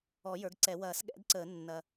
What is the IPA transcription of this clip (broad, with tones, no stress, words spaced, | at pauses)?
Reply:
ɔ˨˩˦ jə˞˩˥ɡǀɛ˨˩˦ wɐː˨˩˦sɠɛ̰˩˥d ǀəː˨˩˦nːɐ˨˩